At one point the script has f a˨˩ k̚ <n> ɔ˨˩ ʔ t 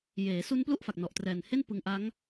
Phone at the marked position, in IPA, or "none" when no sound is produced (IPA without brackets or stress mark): n